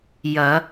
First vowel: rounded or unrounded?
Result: unrounded